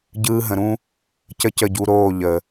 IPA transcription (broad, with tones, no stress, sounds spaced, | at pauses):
ɟ ɯː˦ ɦ ə̃˧ ɾ ũ˦ | c ə˦ c ə˦˨ ɟ u˧ ɾ oː˦˨ ʎ ə˨